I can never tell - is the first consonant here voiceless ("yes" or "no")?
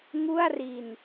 no